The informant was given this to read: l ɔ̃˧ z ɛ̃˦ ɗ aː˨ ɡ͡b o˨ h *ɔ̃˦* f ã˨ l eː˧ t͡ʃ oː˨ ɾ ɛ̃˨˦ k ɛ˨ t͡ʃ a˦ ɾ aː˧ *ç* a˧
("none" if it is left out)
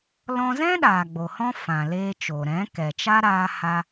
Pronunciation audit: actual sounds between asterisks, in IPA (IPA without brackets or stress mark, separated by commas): ɔ̃˦, h